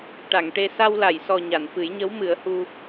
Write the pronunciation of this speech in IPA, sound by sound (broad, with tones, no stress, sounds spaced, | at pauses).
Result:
ʈ a˨˩˨ ŋ ʈ e˧ s a˧ w l a˨˩˨ j s ɔ˨˩ ɲ a˨˩˨ n f ɨ˨˩˦ j ɲ ə˧˥ w m ɨ˨˩˦ ə̯ h u˧